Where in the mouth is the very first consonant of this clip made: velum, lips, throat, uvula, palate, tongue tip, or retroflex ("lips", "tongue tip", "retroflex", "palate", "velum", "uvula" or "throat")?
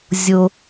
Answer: tongue tip